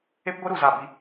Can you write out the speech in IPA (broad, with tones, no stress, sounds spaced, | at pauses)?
e˦ p ɡʷ e˦ ɾ u˧ z a˦˨ b i˦